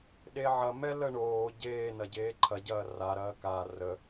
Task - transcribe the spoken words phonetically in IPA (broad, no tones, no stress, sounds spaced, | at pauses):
ɗ e ʕ ɐ m ɛ l ə ɳ oː ɟ eː n ɐ ɟ eː ǃʰ ɐ ɟ ɐː r a ɾ ɐː k a r ə